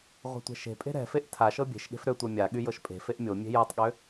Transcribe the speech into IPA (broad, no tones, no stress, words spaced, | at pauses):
ʁʷɛ̤tʷɛ̤ʃe̤pʼe̤ ɾɛ̤feʔ tʰaʃɤ bʲe̤ʃɠe̤f ɾøtʷœ mʲa ɠyjɤʃpʼe̤feʔ mʲo mʲe̤jɤtˤɠø